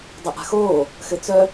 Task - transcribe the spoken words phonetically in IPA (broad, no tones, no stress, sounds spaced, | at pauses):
dˤ ɘ ʔ a̤ x oː | x ɘ t͡s œ